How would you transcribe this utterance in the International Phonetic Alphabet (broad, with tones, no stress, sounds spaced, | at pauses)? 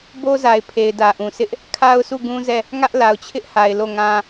b o˦ z a˨ ɪ̯ pʰ e˨ ɪ̯ d ä˨ ʔ ũ˨ sʰ ɪ˦ ʔ | kʰ a˦ ʊ̯ s u˦˨ ɡ ũ˦ z ɛ˦˨ | ŋ ä˦ ʔ l a˨ ʊ̯ t͡ɕʰ ɪ˦ ʔ h a˨ ɪ̯ l o˦˨ ŋ ã˦